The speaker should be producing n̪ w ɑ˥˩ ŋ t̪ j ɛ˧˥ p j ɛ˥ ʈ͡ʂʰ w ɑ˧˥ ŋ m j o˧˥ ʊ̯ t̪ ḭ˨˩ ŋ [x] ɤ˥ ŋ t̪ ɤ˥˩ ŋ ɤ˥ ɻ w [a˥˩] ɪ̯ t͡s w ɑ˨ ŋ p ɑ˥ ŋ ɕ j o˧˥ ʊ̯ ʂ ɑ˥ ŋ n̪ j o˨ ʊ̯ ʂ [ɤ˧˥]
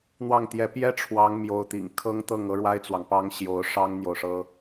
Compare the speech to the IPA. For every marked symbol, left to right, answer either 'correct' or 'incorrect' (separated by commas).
incorrect, incorrect, incorrect